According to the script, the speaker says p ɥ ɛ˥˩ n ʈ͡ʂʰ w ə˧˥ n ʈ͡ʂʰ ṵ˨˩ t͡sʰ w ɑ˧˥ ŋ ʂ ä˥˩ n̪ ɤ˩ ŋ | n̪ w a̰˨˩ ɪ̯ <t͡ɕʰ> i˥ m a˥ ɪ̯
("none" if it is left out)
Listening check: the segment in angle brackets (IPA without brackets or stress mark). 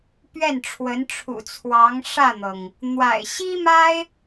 ɕ